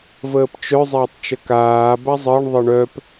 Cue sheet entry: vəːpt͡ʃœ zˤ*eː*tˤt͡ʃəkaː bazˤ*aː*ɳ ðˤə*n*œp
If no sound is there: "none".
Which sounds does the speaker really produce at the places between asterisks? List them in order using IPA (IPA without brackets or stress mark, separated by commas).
eː, əː, ɳ